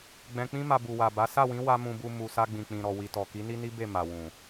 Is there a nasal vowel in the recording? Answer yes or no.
yes